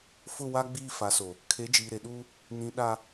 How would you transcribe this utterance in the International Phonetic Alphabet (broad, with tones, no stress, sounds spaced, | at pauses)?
f ʊ˦˨ w a˦ ɡ͡b iː˦˨ f a˨˦ s o˨ | kʰ e˨˦ d͡ʒ iː˨ ɾ e˨ ɗ uː˦ | n ĩ˨ ɗ a˨